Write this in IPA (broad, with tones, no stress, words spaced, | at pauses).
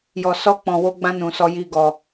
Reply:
jɔ˨sɔ˧k͡pɔ̃˨ wo˧ɡ͡bã˧nũ˨ sɔ˧ji˧ɡɔ˨